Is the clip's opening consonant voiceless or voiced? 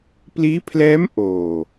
voiceless